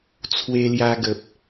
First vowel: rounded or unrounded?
unrounded